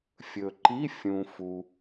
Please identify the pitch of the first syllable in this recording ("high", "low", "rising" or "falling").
low